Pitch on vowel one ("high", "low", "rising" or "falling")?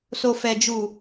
low